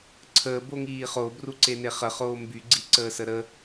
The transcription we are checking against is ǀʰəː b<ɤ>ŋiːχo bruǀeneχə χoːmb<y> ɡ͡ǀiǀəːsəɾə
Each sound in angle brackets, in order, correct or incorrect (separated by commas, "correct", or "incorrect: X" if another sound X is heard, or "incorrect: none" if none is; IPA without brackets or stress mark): incorrect: o, correct